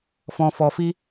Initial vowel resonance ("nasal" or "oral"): nasal